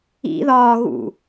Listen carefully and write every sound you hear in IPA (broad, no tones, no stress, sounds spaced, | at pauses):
ḭ ð ɒː ɣ ṵ